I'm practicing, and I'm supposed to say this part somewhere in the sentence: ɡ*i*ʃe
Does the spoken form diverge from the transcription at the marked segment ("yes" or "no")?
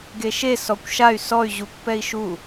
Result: yes